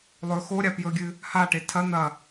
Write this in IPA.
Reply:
lˠ ɵ x o ɾʲ a p j ɵ ɡʲ ɨ | h a ʈ e tʰ ɐ n̪ ɐ

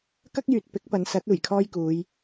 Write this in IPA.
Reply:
k ɐ˥ k̚ j yː˨ t̚ p ɪ˨˥ k̚ p ɐ˨˧ n s ɐ˨˥ t̚ uː˨˩ j kʰ ɔː˥ j k uː˨˧ j

